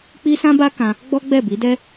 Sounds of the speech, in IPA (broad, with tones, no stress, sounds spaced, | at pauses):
k͡p i˦ s ã˦ b a˦ k ã˧ | ɡ͡b ɔ˦ ɡ͡b ɛ˦˨ b i˨˦ d ɛ˦